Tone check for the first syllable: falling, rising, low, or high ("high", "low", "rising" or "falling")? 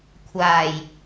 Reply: low